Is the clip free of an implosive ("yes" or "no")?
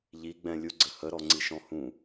yes